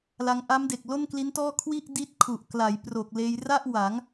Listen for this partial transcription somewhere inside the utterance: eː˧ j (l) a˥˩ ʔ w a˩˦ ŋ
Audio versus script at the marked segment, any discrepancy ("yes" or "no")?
yes